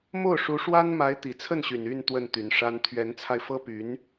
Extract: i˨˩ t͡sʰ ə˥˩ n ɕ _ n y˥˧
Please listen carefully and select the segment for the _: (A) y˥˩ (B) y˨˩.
B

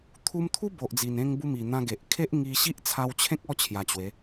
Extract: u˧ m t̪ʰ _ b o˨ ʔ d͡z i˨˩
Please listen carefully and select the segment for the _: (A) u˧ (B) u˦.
B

